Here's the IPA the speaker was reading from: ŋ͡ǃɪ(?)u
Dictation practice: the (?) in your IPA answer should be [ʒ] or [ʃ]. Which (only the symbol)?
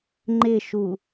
ʃ